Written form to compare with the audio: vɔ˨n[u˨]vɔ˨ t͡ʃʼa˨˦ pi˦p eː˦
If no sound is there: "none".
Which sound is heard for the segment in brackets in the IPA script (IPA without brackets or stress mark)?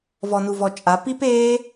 u˨